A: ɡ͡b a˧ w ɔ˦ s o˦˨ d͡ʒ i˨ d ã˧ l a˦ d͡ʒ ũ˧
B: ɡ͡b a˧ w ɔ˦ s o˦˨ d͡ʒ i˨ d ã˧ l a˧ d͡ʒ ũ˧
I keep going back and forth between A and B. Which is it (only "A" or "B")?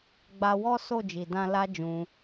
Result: A